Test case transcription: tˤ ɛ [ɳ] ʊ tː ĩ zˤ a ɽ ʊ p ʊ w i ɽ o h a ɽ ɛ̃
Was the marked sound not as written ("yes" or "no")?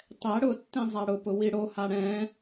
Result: yes